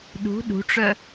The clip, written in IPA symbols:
ɗ ṳ ɗ ṳ ʈ͡ʂ œ

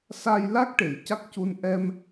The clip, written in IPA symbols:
s aː˧ j l a˦˥ k̚ ʈ e˨˩ j c a˦˥ k̚ c u˧ n ʔ ɛ˧ m

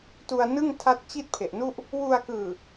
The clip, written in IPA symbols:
t u˧ a̯ n ɯ˥˩ ŋ tʰ a˦˥ t̚ t͡ɕ i˥˩ t̚ pʰ e˨˩ ʔ n u˥˩ ʔ | w u˧ a̯ k ɯː˨˩

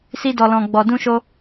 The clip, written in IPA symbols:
s i˧ d ɔ˨ l ɔ̃˨ ɡ͡b ɔ˨ d ũ˧ ʃ o˧

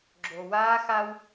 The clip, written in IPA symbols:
ɡ͡ǁ o˨ w aː˦ x a˦ w

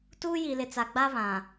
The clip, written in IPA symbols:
t uː˦ j i˨ l ɪ˨ t͡s a˨ ɡ͡b a˦ β ã˨

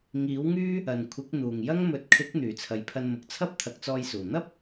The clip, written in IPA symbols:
ŋ iː˨˥ w ŋ yː˥ | ɐ˨ n kʷʰ ɪ˨˥ k̚ n̪ uː˨˩ ŋ j ɐ˥ ŋ m ɵ˨ t̚ kʰ ɪ˨˥ k̚ n̪ yː˨˩ t͡sʰ ɐ˨ j pʰ ɐ˧ n m ʊ˨ k̚ t͡sʰ ɐ˥ p̚ t̪ʰ ɐ˨ k̚ t͡s ɔː˧ j s uː˨˩ n̪ ɐ˥ p̚

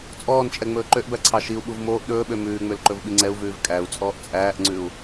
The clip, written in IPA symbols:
t͡sʼ ɔː n t͡ʃʼ ɛ ŋ͡m ɵː ǃ ø ʔ b æ ǀʰ ɑ ʃ i u̯ ɓ u v m oː ʔ ɗ ɵː ɓ ø m ʉː ŋ͡m ø l ǃ ɵ v ɓ i ŋ͡ǀ ɛ u̯ v ʉː v kʼ æ u̯ t͡sʼ ɔː ʔ t͡sʼ æː ʔ ŋ͡ǀ ʉ u̯

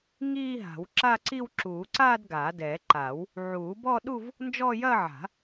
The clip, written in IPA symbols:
ŋ iː˥˧ ɦ a̤˨˩˦ w ǁ a˥˧ ǀ i˥˧ w ǁ uː˨˩˦ ǀ aː˥˧ d ɡ aː˨˩˦ d ɛː˨˩˦ ǃ aː˨˩˦ w | ʕ uː˨˩˦ b ɔ˥˧ ɗ u˥˧ v | n d͡ʒ ɔː˥˧ j ɐː˥˧ ʕ a̤˨˩˦

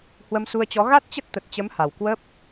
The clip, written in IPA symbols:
h w ə˧ m s u˧ ə̯ t͡ɕ ɔ˨˦ ɣ a˦˥ t̚ t͡ɕ ə˦˥ t̚ t̪ ə˨˩ t̚ t͡ɕ ə˨˦ m h a˨˩ w k w əː˦˥ p̚

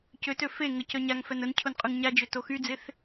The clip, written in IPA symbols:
c ø t ø f e ŋ ə c œ ɲ a ŋ f ɛ n ə n cʰ ʊ n qʼ y ŋ ɲ a d͡ʒ ø t o x y d͡z ɪ θ

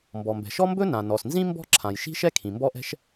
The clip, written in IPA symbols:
m b ɔ˩ m b ɛ̤˩ ʃ ɔ˥ m b ɵ˥ n ã˩ n ɔ˩ s n z ĩ˥ m b ɔ̤˥ ǁʰ ã˩ j ʃ i̤˥ ʃ ɛ˥ kʰ ĩ˩ m b ɔ˥ ʔ ɛ̤˥ ʃ

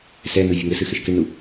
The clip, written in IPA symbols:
s ɛ n u vʲ ɨ ŋ ɘ s ɨ x ɘ ʃ k e ɳ n u

